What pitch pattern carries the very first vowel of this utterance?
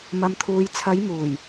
low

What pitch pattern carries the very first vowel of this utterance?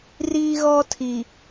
high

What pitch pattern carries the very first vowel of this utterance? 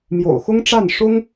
low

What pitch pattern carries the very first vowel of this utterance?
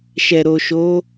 low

